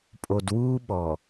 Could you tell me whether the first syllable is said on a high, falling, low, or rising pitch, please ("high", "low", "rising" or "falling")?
low